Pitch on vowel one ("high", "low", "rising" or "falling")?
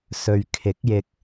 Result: low